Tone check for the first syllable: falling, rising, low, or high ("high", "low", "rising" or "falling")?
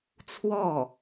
falling